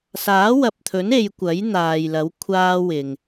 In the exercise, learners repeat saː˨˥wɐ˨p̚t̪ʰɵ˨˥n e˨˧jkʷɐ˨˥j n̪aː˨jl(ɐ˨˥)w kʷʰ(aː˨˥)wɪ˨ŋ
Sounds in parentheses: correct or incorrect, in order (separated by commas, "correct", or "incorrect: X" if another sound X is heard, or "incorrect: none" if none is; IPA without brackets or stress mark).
correct, incorrect: aː˥